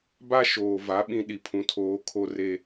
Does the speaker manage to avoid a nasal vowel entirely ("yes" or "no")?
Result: no